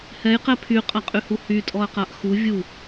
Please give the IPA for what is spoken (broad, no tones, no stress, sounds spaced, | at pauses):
h ɛ j q ɛ pʰ y qʼ a qʼ y h u h y tʼ ɔ ɐ̯ q a ʔ x u vʲ u